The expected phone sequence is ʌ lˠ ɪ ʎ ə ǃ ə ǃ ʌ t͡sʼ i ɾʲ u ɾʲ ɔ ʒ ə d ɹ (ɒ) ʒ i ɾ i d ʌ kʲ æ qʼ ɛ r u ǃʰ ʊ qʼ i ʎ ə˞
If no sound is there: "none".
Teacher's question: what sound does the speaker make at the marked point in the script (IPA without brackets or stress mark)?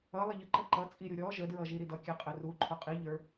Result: ʌ